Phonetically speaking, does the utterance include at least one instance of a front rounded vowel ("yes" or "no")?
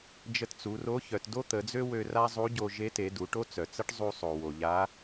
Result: yes